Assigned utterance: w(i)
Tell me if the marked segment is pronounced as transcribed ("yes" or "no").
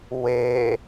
no